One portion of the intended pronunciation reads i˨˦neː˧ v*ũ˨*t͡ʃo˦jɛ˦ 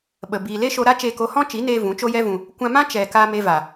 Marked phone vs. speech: incorrect: ũ˨˦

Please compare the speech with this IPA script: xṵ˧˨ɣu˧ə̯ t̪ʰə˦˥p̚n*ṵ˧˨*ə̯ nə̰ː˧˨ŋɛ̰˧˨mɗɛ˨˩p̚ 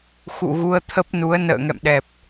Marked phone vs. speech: incorrect: u˨˦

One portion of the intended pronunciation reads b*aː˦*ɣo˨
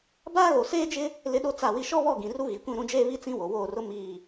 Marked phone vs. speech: correct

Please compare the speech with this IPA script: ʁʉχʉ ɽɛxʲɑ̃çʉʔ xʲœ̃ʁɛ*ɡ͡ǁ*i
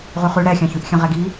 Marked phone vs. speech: incorrect: ɡ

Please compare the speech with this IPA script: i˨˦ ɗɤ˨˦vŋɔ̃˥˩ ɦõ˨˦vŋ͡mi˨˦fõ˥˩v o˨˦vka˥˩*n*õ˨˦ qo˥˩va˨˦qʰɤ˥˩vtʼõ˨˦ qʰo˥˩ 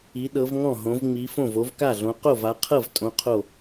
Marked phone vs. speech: incorrect: ɮ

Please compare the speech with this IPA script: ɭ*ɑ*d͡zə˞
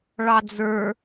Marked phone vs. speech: correct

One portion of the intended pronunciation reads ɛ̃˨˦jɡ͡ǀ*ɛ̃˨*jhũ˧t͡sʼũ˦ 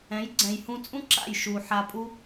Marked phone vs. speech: correct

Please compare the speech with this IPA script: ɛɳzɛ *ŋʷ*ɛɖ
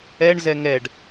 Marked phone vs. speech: incorrect: ŋ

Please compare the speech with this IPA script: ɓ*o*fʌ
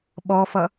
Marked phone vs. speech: incorrect: ɔ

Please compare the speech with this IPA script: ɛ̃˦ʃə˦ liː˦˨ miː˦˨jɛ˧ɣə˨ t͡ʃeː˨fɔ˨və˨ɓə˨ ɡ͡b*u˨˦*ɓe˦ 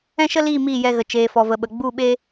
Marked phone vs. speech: incorrect: u˦˨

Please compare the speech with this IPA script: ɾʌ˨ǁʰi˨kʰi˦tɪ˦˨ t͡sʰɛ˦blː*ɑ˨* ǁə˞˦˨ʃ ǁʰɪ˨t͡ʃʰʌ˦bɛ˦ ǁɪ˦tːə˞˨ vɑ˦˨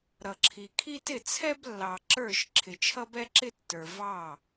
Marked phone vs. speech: correct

